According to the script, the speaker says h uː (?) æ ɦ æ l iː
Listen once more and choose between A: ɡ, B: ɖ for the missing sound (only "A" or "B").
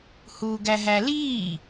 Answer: A